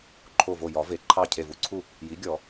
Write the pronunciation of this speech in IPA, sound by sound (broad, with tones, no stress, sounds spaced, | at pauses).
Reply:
ǃʰ o˧˩ v o˧˩ j ɒ˨˩˦ v e˩˥ ǃʰ ɑ˥˩ cʰ e˧˩ v u˧˩ ǀʰ u˥˩ | j i˩˥ ɡʲ ɔ˨˩˦